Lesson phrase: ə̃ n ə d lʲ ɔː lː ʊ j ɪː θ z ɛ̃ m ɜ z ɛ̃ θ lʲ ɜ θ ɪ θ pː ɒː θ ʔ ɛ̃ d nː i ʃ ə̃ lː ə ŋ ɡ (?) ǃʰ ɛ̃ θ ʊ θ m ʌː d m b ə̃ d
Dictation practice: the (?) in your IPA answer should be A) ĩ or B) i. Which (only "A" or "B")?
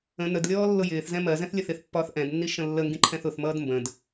A